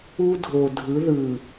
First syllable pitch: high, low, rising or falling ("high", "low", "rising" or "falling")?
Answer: high